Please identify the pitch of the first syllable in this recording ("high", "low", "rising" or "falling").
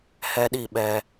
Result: high